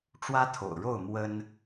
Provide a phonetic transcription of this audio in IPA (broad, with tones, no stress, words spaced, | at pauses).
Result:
ʈ͡ʂwä˦t̪ʰo̰˨˩ʊ̯ɻo˥˨ʊ̯ mwə˦n